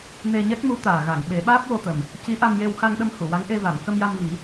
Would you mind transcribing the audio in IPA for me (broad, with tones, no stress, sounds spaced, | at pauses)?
n e˧ ɲ ɛ˦˥ k̚ m u˧˥ t̪ aː˨˩ ɣ a˨˩˨ ŋ ɓ e˨˩˦ ɓ aː˦˥ p̚ w o˧ t̪ ə˨˩ m | c i˧˥ ʔ a˧ m j e˧ w x a˧ ŋ ɗ ə˧ m h u˨˩˨ w a˧˥ ŋ ʔ e˧ v a˨˩˨ m k ə˧ m j a˧ m v i˨˩˦